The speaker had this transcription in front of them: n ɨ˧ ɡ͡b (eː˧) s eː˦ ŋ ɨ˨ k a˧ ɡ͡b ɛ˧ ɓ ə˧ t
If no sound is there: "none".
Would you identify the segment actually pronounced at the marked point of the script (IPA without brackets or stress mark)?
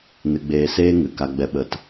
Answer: eː˧